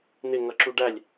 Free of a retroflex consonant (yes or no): no